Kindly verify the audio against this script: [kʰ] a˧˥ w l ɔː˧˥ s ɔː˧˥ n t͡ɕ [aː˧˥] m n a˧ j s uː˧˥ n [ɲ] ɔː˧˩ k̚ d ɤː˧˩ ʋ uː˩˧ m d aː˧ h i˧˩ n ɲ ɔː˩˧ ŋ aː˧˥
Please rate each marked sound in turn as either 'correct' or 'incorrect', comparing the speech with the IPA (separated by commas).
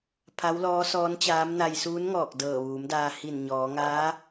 incorrect, correct, incorrect